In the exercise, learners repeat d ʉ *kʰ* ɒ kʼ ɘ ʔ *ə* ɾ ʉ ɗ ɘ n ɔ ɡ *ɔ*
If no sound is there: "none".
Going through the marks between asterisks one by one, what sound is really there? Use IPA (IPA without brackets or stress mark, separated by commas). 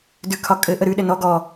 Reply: kʰ, ə, ɔ